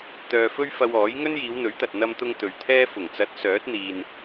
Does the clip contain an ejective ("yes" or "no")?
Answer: no